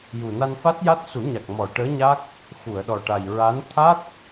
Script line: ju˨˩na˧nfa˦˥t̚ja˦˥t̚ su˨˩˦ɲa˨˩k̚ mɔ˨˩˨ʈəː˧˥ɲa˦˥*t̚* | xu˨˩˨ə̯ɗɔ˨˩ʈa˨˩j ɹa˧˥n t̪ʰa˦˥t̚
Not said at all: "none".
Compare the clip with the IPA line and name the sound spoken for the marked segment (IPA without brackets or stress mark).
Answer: k̚